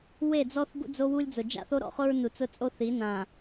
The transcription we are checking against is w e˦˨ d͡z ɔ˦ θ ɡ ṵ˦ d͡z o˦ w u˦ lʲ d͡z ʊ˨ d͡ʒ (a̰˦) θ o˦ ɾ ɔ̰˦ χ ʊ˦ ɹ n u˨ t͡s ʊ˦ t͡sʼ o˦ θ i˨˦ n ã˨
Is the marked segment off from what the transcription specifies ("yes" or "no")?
no